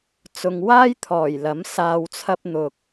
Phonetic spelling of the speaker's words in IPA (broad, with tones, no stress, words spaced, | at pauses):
t͡sʊ˨ŋwaː˥jt̪ʰɔː˨˩j lɐ˨˥msaː˧wt͡sʰɐ˥p̚ n̪ʊ˧k̚